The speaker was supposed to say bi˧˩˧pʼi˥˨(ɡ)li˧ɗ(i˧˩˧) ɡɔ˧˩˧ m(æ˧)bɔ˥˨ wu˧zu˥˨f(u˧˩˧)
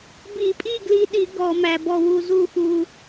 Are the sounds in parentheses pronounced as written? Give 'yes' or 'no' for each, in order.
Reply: yes, yes, yes, no

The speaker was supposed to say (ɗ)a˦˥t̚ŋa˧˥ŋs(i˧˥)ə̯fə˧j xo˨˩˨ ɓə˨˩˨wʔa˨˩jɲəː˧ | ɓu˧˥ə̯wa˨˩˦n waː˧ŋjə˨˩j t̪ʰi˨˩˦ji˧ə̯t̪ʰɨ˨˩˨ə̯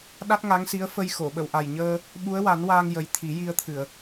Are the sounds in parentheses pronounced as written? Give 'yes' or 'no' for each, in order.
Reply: yes, yes

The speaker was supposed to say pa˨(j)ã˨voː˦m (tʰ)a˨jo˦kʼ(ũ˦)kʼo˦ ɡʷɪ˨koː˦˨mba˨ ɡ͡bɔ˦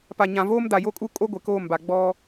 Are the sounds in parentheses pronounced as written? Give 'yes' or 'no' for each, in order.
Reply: no, no, no

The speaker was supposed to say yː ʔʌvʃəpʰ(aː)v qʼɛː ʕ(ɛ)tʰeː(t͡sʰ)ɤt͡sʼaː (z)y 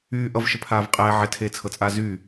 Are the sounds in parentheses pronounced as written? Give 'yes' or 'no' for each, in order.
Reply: yes, yes, yes, yes

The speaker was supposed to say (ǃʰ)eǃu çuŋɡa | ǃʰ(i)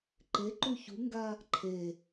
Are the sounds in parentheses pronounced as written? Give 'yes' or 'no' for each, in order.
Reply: no, no

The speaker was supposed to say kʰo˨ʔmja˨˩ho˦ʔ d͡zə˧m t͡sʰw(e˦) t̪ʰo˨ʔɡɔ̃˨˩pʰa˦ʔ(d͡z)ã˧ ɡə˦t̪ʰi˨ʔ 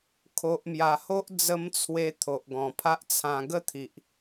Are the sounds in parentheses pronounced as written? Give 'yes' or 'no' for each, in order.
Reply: no, no

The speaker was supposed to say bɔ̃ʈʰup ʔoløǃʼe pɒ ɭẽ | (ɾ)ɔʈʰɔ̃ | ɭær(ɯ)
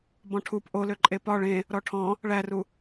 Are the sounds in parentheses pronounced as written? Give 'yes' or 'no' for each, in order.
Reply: yes, no

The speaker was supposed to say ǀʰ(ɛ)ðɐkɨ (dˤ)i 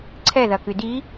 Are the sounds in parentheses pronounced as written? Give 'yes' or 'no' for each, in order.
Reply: yes, no

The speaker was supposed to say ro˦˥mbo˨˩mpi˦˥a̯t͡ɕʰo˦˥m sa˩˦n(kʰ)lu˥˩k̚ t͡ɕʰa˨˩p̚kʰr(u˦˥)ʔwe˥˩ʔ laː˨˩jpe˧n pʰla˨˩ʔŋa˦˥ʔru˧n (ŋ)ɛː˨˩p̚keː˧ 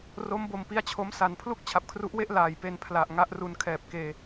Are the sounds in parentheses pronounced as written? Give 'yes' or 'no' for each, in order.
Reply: no, yes, no

